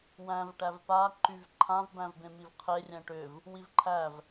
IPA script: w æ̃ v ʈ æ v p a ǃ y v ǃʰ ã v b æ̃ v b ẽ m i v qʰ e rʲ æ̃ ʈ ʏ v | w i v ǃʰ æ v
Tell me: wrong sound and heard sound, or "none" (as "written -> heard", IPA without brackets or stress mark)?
none